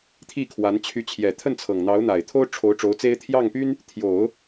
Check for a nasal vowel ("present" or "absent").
absent